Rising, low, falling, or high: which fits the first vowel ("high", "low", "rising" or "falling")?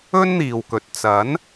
high